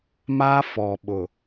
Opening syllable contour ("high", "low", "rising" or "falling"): high